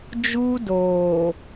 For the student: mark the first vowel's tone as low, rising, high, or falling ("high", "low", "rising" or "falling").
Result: high